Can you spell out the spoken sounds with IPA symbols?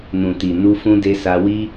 n ũ˨ t i˨ n u˧ f ũ˧ d e˧ s a˧ w i˦

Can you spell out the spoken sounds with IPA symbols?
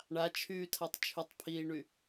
ɳ a t͡ʃʰ yː tʰ a tˤ t͡ʃʰ y tˤ pʰ iː ɳ y

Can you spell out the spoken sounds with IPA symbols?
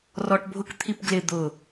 r ɔ ʈ bʱ ʊ k t̪ʰ i p ɡ l ɪ d̪ ʊ

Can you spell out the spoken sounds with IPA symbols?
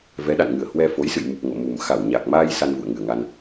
v ɛ˨˦ ɗ a̰˧˨ n ŋ ɨ˧˩ ə̯ h w ɛ˧ f o˨˦ j s ɨ̰˧˨ j m u˨˩ p̚ ŋ o̰˧˨ m u˨˩ m x a˧˩ w ɲ a˨˩ k̚ m aː˧ j s a˧ n v ṵ˧˨ ə̯ ŋ ɨ˨˩ ə̯ ŋ a˧ n

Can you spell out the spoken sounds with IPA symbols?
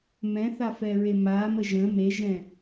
m ɛ̃ θ a f ɛ ɹ e m a m ə ʒ ə̃ m e ʒ ɛ̃

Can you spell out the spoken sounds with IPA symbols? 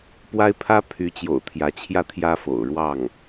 p w a˥ ɪ̯ pʰ ä˥ pʰ y˧˥ t͡ɕ j o̰˨˩ ʊ̯ t̪ʰ j ä˧˥ t͡ɕʰ j ä˥˩ t̪ʰ j ä˥ f o̰˨˩ ʊ̯ ɻ w ɑ˥˩ ŋ

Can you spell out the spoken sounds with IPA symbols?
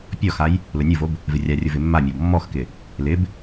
pʲ ɔ x a j | l ʊ nʲ u v o b | v ɪ rʲ a rʲ ʊ v ɪ mː a mʲ ɔ b mː ɔ x k ɪ | l ɪ b

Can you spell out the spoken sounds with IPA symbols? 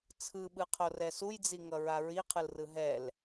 t͡sʰ ɯ ɓ ɯ qʰ o r ɛ s u j d͡z i ŋ ʌ ɹ a ɹ i qʰ ɯ l r ɯ ɦ ɛ l

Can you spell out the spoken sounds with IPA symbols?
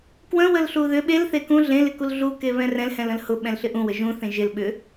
k w ə̃ w ə l ɬ u ð ʏ ɓ e l θ e k ũ ɮ ẽ l ɪ k u l ɮ u k e β ɛ̃ r ɛ̃ l h ɛ̃ l ə̃ l h ʊ ɓ ɛ̃ l ɬ ɪ ʔ ũ w ə ʒ ũ θ ẽ ʒ ɪ l ɓ ʏ

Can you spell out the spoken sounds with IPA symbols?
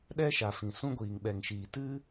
ɗ ɛ˦ ʃ a˨ f ĩ˨ s ũ˧ ɡʷ iː˨ ŋ ɓ ɛ˨ ŋ ʃ iː˨ t ɨ˦

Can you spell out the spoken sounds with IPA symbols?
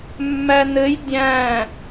mː æ n ɘ j dʲ æ̃

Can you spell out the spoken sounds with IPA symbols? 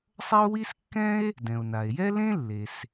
sˤ ɐ˥ o̯ w i˥ s kː ɛ̃˥ e̯ | d ɛ̃˩ o̯ n a˩ e̯ j ɛ˥ l ẽ˥ lː e˩ s

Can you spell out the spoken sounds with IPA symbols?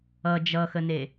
ʌ d͡ʒ ʌ x ə n e

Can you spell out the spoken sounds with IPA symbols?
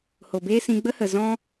h o˨ b eː˦ s ĩ˧ ɡ͡b ə˦ h ə˨ z ɔ̃˦

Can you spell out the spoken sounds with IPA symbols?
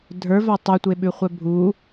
dʱ ə˞ v a tˤ u tʷ e ɓ ʉ χʷ ɛ bʱ u

